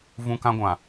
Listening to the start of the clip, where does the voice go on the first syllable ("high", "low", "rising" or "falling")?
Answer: high